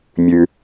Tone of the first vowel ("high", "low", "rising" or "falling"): low